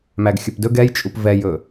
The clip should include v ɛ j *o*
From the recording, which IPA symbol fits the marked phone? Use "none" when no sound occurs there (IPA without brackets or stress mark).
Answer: ɵ